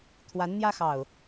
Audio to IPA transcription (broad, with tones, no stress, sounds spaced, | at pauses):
t̪ʰ w a˨˦ n n̪ j ä˦ x ɑ˨˩ ʊ̯